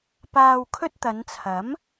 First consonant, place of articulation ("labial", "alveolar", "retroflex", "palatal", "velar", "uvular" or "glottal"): labial